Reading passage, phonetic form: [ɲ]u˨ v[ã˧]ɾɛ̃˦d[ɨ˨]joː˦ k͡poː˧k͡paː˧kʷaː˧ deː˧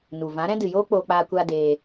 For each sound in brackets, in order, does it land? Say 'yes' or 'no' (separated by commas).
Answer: no, no, yes